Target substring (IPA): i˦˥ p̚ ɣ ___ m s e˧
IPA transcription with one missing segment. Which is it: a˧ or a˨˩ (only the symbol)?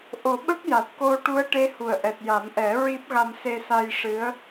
a˧